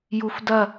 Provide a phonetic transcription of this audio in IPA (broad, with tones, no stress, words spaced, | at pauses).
ju˦f dɐ˥˨